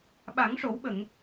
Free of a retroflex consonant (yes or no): no